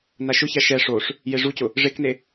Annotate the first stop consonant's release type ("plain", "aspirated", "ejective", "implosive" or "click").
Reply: plain